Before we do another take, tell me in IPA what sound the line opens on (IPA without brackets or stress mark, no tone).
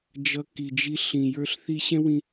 d͡ʒ